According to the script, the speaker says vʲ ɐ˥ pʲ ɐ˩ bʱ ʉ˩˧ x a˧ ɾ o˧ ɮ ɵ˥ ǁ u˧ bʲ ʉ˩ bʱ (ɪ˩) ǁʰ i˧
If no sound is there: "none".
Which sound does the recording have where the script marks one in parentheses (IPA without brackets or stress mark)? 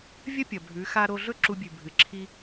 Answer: ɨ˩